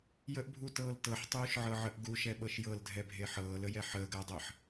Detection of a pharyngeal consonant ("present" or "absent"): present